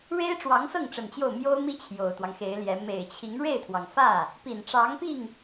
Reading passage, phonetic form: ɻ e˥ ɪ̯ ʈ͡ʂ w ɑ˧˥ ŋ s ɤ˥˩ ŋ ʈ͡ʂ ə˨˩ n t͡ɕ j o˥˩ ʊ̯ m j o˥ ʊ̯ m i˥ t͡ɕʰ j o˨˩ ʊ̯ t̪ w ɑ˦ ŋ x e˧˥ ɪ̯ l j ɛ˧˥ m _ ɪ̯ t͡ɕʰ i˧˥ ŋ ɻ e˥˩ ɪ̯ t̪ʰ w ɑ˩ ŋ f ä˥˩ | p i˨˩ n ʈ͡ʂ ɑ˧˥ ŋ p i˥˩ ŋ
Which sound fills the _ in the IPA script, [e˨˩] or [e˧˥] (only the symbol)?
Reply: e˨˩